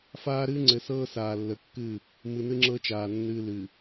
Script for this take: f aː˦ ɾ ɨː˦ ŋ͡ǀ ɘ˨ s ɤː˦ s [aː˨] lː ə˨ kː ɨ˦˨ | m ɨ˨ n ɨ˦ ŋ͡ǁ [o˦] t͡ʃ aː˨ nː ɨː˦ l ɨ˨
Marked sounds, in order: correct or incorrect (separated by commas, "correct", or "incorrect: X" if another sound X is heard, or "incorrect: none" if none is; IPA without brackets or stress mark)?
correct, incorrect: ɤ˦